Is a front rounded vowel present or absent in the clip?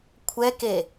absent